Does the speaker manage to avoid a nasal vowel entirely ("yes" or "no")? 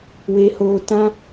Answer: no